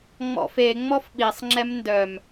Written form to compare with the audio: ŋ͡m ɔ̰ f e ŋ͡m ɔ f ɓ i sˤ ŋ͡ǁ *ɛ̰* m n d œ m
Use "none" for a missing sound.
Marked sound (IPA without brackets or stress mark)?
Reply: ɛ